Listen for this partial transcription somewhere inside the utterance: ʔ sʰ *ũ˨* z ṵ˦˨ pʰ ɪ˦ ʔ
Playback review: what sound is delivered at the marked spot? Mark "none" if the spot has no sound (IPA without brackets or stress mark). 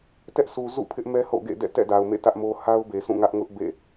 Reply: u˨